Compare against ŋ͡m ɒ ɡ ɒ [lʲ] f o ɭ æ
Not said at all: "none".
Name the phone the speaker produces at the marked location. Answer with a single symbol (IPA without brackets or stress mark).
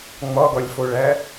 lʲ